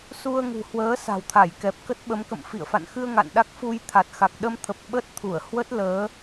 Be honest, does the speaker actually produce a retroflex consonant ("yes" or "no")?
no